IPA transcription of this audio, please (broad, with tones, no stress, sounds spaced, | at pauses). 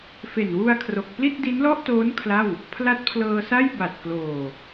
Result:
f e˨˩ n w u˧ a̯ kʰ r o˨˩ k̚ p l i˥˩ t̚ d i˦˥ n l ɔ˥˩ ʔ t oː˦˥ n kʰ l a˥˩ w | pʰ l a˦˥ t̚ pʰ l ɤː˧ s a˥˩ j b a˨˩ t̚ k l oː˨˩